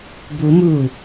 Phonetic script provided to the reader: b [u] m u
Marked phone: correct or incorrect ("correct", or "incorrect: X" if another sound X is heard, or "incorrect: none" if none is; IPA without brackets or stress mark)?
correct